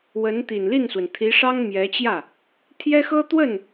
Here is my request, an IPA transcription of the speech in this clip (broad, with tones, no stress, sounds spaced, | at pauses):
w ə˧˥ n t̪ i˨˩ n l i˥˩ n s w ə˩ n t̪ʰ i˧˥ ʂ ɑ˥ ŋ m j ɛ˧˥ t͡ɕ j ä˥˩ | t̪ʰ j ɛ˥ x ɤ˥ t̪ w ə˥˩ n